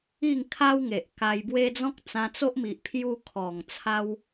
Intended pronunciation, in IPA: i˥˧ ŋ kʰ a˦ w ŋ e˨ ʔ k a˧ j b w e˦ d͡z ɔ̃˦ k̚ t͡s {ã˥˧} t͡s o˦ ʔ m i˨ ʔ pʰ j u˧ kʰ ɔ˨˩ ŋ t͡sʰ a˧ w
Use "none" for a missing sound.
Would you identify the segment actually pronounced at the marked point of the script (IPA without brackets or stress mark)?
ã˧